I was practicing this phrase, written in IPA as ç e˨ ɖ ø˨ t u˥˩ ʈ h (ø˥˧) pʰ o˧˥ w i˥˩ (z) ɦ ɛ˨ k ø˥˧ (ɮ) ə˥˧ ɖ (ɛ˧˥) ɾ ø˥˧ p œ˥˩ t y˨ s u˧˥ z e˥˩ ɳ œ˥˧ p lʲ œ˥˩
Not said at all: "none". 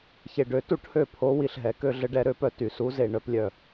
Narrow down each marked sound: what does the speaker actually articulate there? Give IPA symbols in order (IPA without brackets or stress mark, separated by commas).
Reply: ø˥˧, ɬ, ɮ, ɛ˥˧